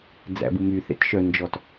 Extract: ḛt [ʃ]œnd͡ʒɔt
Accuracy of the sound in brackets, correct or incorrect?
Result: correct